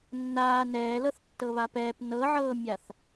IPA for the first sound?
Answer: nː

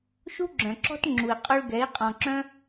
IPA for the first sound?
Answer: ʃ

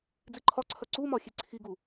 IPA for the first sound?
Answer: d͡z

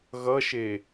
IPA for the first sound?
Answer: ɣ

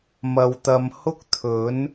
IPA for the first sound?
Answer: m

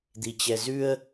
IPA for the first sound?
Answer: d̪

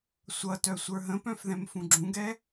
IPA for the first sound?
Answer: sʷ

